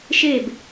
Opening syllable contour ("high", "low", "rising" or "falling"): falling